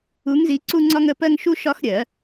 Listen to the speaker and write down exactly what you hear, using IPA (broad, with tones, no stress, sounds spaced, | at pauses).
u˨˦ ŋ z i˨˦ ǀ u˦ ŋ͡ǀ ɒ˦ ŋ ə˨˦ p ɜ˦ ŋ ʃ u˦ ʃ ɒ˦ x ɾʲ ɜ˨˩˦